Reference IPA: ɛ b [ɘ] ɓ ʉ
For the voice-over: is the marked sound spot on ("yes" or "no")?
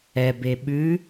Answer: no